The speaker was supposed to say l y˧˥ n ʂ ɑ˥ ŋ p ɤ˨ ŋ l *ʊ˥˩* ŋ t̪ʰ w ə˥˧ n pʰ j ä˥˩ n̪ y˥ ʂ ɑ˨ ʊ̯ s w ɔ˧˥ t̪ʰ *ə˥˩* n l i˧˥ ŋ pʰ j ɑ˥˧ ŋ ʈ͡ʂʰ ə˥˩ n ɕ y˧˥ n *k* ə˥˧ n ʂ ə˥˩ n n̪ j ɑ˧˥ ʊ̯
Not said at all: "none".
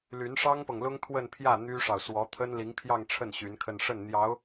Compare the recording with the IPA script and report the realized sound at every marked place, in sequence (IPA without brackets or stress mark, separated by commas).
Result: ʊ˥, ə˥, kʰ